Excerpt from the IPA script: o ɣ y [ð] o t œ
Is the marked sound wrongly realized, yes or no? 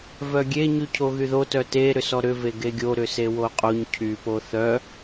no